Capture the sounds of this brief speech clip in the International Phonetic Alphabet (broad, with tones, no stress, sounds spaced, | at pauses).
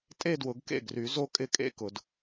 tʼ e˥˧ d w ʊ˨˩˦ ɡ k ḛ˥˩ ɡ r y˨˩˦ z o˥˧ kʼ ɪ˥˧ kʼ ḛ˥˧ k ʊ˨˩˦ d